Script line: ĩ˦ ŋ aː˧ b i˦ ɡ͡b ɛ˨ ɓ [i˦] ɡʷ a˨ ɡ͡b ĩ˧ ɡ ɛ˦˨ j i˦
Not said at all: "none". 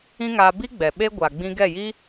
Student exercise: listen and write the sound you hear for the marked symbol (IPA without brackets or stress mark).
e˦